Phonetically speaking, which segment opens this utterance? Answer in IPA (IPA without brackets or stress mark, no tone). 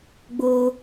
ɡ͡b